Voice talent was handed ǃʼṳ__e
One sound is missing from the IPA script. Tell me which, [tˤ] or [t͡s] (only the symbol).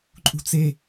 t͡s